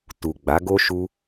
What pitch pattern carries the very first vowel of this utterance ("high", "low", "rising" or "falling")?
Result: low